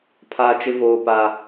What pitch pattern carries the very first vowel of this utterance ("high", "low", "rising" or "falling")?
high